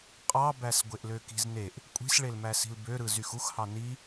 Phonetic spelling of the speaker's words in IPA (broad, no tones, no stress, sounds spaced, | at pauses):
qʼ ɑ b æ s ɡʷ e ʔ l ø k i̤ z n e ʔ | kʷʼ i̤ s ɭ e l m æ s i̤ l b ø ɾ ɯ z y x u x h ɑ n i